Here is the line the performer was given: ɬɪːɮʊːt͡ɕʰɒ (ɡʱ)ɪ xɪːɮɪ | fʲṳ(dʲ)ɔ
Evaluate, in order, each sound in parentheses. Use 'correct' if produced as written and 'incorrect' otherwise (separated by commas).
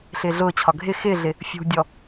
correct, correct